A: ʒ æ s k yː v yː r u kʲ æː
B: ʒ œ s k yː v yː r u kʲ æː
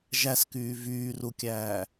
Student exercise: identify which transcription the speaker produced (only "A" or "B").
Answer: A